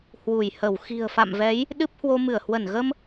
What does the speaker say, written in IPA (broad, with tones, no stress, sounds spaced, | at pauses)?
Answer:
h w u˧˩ j h ə˧˩ w x i̤˨˩ ə̯ f a̰˧˨ m v ɛ˨˦ j | ɗ ɨ˦˥ p̚ h w o˧ m ɨ˧˩ ə̯ h w ə˧˩ n ɣ ə˧ m